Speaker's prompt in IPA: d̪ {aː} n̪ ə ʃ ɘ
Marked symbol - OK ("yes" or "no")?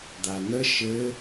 no